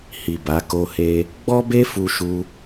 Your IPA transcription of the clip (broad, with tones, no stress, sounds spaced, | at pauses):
h i˨ b a˨˦ k o˦ h e˦ | ɡ͡b ɔ˦ b e˦ f u˧ ʃ u˧